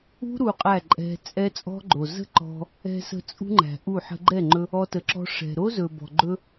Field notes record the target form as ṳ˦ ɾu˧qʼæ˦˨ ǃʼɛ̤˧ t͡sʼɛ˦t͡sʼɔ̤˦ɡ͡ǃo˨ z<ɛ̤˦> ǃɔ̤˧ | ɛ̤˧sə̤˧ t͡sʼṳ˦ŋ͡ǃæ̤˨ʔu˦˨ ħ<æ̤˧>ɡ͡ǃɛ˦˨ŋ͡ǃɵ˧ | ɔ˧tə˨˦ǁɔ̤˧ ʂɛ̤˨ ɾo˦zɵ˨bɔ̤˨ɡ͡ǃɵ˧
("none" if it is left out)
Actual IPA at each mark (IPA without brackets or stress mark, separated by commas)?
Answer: ə̤˦, ə̤˧